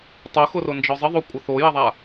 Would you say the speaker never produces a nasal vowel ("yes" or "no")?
yes